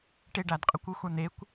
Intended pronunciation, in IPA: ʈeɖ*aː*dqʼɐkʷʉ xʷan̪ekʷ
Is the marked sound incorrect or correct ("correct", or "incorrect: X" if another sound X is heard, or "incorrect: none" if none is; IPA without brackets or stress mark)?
incorrect: a